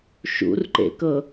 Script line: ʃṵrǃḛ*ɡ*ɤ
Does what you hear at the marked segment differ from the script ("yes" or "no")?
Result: yes